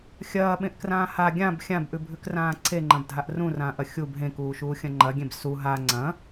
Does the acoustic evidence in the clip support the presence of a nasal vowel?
yes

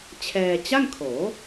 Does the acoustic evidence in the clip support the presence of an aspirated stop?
yes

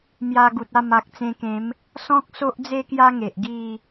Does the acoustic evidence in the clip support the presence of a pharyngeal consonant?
no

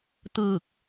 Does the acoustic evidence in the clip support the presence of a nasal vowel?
no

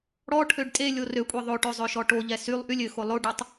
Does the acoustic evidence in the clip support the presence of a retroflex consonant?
yes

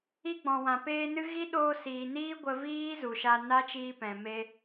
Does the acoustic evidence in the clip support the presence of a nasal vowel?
yes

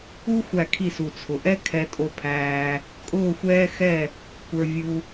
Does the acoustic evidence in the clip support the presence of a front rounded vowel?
no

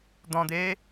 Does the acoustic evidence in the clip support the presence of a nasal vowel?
yes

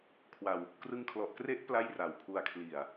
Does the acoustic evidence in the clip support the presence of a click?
no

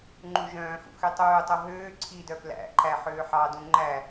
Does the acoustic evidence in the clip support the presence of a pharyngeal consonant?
yes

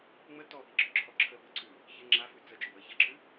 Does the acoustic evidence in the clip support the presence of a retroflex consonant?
no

